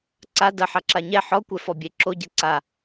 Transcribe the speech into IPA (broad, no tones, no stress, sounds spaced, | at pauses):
ǀ a d ɐ ħ a ǁ a ɲ ɛ ħ ɔ kʷ ɛ f ɔ bʲ e ǁ o ɟ ɛ ǀ a